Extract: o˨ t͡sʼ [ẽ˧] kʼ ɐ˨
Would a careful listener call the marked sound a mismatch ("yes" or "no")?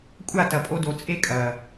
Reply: yes